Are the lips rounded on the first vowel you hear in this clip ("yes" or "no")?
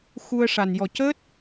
yes